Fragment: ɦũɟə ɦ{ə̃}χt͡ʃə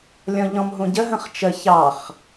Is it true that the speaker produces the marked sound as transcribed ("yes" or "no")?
yes